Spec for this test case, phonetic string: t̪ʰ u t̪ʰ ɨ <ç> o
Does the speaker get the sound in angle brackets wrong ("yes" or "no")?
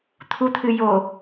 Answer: yes